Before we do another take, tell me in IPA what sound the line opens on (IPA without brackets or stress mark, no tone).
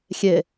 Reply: xʲ